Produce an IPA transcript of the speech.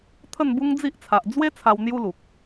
t̪ʰə˥˧nbu˦ŋd͡zi˦ʔt͡sʰa˨ʔ d͡zwe˦ t͡sʰa˧w n̪ju˦lu˨k̚

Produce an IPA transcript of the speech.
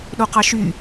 ɗoqɑʃy

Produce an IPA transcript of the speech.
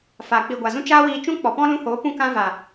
fa˨ k͡pi˨ɡʷa˨zũ˧ t͡ʃaː˦wiː˧t͡ʃũ˦ k͡pɔ˨pɔ̃˦ lũ˧hoː˨˦ pũ˧kã˧va˨

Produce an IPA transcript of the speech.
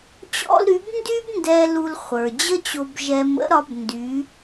t͡ɕɔ̰˥lɾy˧˥b ndy˥b ndɛ˧ lu˧lχʷə˞˩d͡ʑə˥t͡ɕo˧b ʒɛ˧mə̰˧˥ɾɒ˧˥b ndy˧˥

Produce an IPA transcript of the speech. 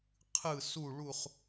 qʰɯ˥˧su˥˧ɭu˥˧χ

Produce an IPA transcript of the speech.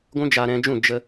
ɡʷũ˦d͡ʒaː˧ɾɛ̃˧d͡ʒũ˦˨ d͡ʒə˧

